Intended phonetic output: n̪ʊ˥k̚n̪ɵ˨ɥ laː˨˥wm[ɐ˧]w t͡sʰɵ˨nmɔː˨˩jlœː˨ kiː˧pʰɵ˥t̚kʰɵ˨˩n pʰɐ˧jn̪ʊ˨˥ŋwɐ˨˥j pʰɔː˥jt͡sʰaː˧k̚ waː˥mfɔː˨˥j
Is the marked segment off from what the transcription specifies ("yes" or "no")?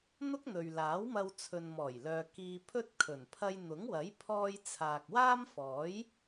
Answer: no